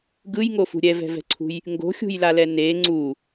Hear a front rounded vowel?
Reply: no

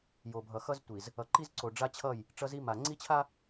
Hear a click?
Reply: yes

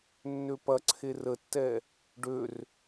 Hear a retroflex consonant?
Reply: yes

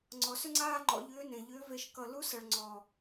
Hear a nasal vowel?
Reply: yes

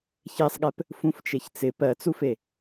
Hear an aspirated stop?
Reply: no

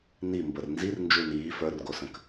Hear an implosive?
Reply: no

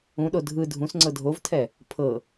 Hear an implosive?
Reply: yes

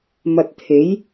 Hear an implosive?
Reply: no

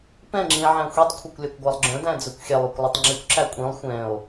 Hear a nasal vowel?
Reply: yes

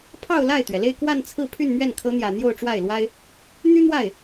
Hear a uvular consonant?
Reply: no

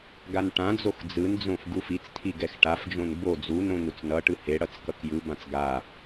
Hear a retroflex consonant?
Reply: yes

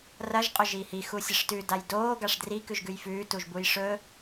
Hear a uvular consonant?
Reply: yes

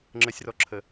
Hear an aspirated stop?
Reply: yes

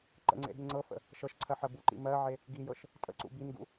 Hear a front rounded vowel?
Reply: no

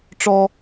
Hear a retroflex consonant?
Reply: yes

